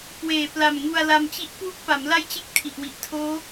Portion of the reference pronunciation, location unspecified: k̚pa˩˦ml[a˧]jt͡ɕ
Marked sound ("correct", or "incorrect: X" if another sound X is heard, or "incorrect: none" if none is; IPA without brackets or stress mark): incorrect: a˥˩